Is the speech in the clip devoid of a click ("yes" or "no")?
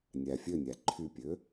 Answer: no